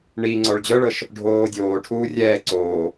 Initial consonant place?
retroflex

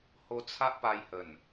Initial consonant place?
glottal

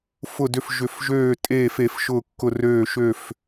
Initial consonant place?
labial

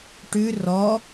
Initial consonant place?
retroflex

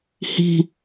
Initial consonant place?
glottal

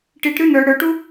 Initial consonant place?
retroflex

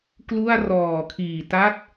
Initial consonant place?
velar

